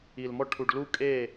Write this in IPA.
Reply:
i˨lmɔ˧ ʈʰu˨ɖlu˧ kʼe˦˨

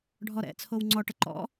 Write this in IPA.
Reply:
ɖʱɔɾɛ̰t͡sʰow ŋ͡ǀɔʈə ǃɔ̰

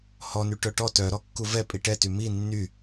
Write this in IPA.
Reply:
hɔny ʈœʈɔ tœɾɔkːu vɛ pʼiʈɛty mi nːy

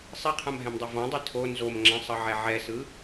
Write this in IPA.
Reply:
sˤiqʰãmɦɛ̃mdˤo vɔ̃dˤi tʰo nzomŋ͡ǁɛ̃sˤɤʕɛ ʕɛsɯ

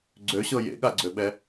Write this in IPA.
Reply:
ɡ͡ǀøɕɤ jḛɠaɡ͡ǀøɓɛ

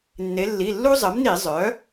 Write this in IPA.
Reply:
nːe˩˧lːi˩˧˩lːu˦ zˤə˩˥mni˧˩˧zˤœ˩˥

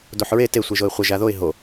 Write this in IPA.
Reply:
doħɹe te sʷiʒoɪ̯χʷə ʒaðoɪ̯ ɦo

